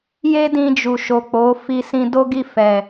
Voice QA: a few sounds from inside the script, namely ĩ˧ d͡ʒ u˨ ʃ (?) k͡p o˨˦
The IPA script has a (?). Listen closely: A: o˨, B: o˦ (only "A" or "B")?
A